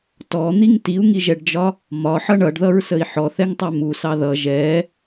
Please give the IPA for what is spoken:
t ɔ n̪ i ŋ t i u̯ ŋ i ʒ ɛ ɖ d͡ʒ ɒ | m ɒ ħ ʌ ɳ ʌ ɖ ð ʌ ɹ s ə i̯ ħ ɔ θ ɛ ŋ tˤ ɛ m u s ɑ ð ʌ ʒ ɛ

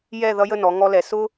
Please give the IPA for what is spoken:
j ɛ˥˧ ð ʌ˥ j ə˥˧ n ɔ˩˧ ŋ ɔ˧ l ɛ˩˧ s ʊ˥

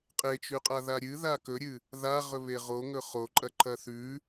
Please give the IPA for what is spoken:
qʼ e t͡ʃ ʉ qʼ a ð a ɾʲ ɨ ð a k ɵ ɾʲ ɨ | ð a ʁ ɵ β e ʁ o ŋ ɵ χ o ǃʼ ɐ ǃʰ ɐ θ ʉ

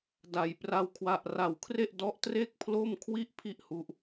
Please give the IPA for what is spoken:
d a˧ j p r a˥˩ w kʰ w a˥˩ ʔ r a˧ w kʰ r e˥˩ ʔ d ɔ˦˥ ʔ t r e˥˩ k̚ pʰ l o˥˩ m kʰ w i˥˩ ʔ pʰ i˥˩ ʔ h u˦˥ ʔ

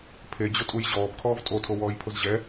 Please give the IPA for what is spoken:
pʰ e d͡ʑ ʊ tʼ u j ʑ ɔː b kʰ ɔː v tʼ o tʰ o w ɔː j pʰ ʊ z ʑ ɛ

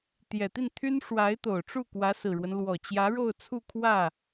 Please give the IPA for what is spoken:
t̪ j ɛ˨˩ t̪ i˥˩ n t̪ʰ y˥ n ʂ w a˧˥ ɪ̯ t̪ o˨˩ ʊ̯ ʈ͡ʂ u˥˩ k w ä˧˥ s ɹ̩˨˩ ɻ w ə˦ n l w ɔ˨˩ t͡ɕ j ä˧˥ ɻ o˥˧ ʊ̯ t͡sʰ u˥˧ kʰ w ä˥˩

